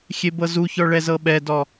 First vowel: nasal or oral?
oral